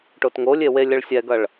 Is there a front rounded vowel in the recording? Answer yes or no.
no